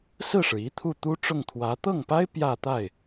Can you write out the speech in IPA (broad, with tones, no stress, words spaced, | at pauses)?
sɹ̩˥˩ʂɻ̩˩i˧˥ t̪ʰu˥˩t̪u˥ʈ͡ʂʊ˥˩ŋt̪ʰwä˧˥ t̪ɤ˥˩ŋpa˥ɪ̯ pjä˥˧t̪a˥˩ɪ̯